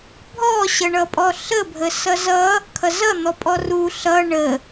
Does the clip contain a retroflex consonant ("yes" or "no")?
yes